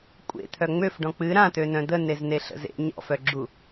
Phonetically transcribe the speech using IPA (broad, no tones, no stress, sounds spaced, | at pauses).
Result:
kʷʼ ḛ t̪ʰ œ ŋ͡m ø f ɖ ɔ̃ k͡p ɨ ɾ ã t̪ ø n œ̃ d̪ ə n e z n e ɬ ə̰ z ḛ ɲ ɔ̰ f œ ɡ͡ǁ u